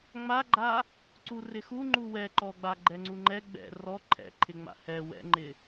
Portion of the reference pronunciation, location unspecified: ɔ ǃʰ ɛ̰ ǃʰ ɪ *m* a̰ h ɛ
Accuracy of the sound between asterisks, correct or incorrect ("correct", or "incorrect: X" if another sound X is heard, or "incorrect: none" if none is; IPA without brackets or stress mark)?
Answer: incorrect: ŋ͡m